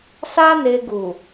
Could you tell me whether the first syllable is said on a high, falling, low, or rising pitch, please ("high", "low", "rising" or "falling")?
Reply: high